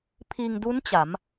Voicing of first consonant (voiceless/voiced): voiceless